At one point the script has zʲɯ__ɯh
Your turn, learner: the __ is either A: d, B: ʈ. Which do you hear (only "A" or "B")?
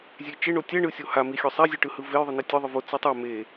B